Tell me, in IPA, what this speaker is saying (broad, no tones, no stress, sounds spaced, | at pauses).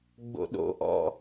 ɡ͡b o̰ ɗ o̰ ʔ ɔ̰